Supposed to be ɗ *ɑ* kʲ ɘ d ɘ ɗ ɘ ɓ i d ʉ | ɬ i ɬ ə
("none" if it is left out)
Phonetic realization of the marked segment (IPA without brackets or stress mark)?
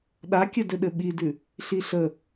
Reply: a